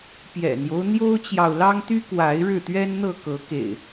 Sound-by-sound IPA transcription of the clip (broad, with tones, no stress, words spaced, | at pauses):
pjɛ̰˨˩n̪jo˦ʊ̯ n̪jo˦ʊ̯t͡ɕjɑ˨ʊ̯lɑ˦ŋ t̪y˦kwa˨˦ɪ̯ ɻɻ̩˥˨t̪ɥɛ˦nn̪ɤ˥˨ kɤ˨˦kḛ˨˩ɪ̯